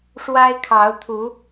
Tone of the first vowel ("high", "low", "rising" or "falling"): high